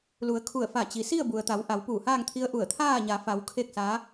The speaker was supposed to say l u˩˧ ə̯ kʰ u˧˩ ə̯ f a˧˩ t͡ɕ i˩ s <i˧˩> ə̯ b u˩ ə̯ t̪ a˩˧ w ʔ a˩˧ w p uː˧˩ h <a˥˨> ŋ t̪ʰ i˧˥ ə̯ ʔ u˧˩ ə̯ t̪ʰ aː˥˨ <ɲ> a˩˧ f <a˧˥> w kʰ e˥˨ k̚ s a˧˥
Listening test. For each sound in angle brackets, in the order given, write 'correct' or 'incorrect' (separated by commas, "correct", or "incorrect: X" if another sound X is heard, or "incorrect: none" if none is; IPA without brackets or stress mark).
incorrect: i˥˨, incorrect: aː˥˨, correct, incorrect: a˩˧